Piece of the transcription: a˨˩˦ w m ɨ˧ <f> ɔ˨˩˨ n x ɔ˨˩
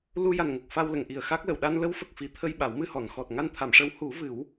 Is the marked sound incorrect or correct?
incorrect: h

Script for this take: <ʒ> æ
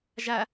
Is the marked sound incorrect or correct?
correct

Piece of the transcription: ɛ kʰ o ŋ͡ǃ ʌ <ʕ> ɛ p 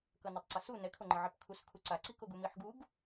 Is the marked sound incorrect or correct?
correct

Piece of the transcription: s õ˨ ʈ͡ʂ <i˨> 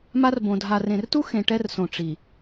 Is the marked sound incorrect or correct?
correct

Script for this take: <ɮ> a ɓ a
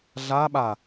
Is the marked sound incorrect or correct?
correct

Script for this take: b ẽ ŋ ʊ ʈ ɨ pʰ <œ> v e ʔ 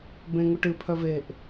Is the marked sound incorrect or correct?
correct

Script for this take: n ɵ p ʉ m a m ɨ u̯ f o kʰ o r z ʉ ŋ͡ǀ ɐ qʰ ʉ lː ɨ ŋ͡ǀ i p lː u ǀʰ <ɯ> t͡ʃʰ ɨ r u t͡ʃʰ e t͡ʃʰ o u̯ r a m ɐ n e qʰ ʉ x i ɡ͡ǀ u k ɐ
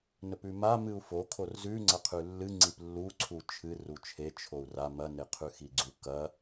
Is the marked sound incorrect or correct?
incorrect: u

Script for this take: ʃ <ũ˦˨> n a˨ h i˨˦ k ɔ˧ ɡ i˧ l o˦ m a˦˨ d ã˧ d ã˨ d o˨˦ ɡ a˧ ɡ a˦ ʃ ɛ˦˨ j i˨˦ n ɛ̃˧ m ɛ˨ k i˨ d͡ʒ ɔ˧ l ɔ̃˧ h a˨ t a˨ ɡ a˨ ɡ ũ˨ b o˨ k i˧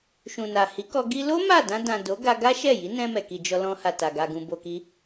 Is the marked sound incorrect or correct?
incorrect: ũ˨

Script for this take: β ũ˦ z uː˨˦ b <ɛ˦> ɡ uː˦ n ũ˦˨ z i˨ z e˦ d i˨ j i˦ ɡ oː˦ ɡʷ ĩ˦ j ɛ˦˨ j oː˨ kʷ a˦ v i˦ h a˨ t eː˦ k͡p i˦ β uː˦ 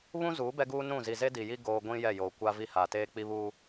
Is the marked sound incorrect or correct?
correct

